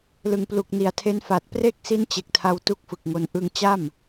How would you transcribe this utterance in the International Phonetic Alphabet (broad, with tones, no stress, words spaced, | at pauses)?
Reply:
lɯ˨˩ŋplu˨˩k̚ ni˩˦a̯tʰe˦˥n fa˨˩t̚ pre˥˩k̚ si˦˥nt͡ɕe˨˩k̚tʰa˧w tu˦˥k̚fɯ˨˩k̚ŋo˧n ʔɯ˧ŋt͡ɕa˥˩m